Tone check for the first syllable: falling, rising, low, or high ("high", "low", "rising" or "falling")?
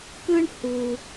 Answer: high